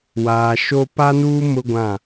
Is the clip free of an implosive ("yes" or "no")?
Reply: yes